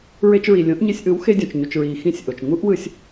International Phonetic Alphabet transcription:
ɹe˧t͡ʃɹi˩ lʲõ˩˥ʔɲe˧sʲʔɯ˩˥w xe˧dʲõ˩t͡ʃɲu˩t͡ʃɹiː˩ xĩ˥˩sʲʔo˩t͡ʃ ŋu˥ʔwɯ˧sʲ

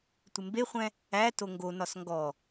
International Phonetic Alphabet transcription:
tʷɪmbeχʷɛ̃ | æ toŋɡonɒs ŋɡɔ

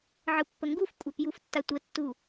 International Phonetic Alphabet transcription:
ʕɯpːəŋɡufkʷʼap juftːatʷətːu

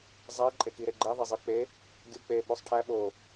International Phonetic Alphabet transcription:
zˤæ ǃʼekiɾeɡ͡ǃe ðˤezˤek͡pe | ɡʲuk͡pe ɓosˤʈʰæ ɓo

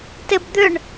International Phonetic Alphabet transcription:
tebd̪ʏɳ

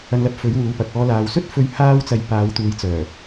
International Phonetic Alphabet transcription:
ɐ˧nlɐ˧p̚ fɵ˨˥ɥ wuː˨˧pɐ˨k̚ ɔː˨˧laː˨w sɵ˥t̚fɵ˧ɥ haː˥wt͡sɐ˧j paː˨˧wt̪uː˨˧jt͡sœː˨˩

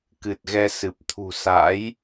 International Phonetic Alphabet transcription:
kɨ˨˩t̚ɣɛ˧ sɨ˨˩p̚t̪ʰṳ˨˩ sa̰˧˥j

